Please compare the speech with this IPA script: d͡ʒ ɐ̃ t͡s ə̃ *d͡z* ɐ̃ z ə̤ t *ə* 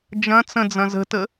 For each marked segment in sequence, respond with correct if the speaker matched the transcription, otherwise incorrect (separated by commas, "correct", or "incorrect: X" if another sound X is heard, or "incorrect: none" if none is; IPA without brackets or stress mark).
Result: correct, correct